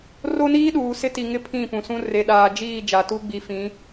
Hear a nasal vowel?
yes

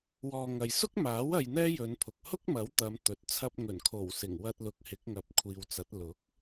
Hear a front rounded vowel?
no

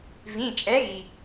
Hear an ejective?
yes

